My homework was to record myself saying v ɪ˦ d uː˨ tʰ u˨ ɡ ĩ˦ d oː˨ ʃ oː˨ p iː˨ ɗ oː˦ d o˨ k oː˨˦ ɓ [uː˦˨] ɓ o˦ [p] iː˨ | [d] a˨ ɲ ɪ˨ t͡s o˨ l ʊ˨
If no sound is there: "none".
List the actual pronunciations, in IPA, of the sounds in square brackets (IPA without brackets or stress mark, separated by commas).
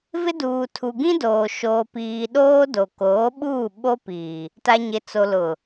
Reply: uː˦˨, p, t